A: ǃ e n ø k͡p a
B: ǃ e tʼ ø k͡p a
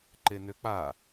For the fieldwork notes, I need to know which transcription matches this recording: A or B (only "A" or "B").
A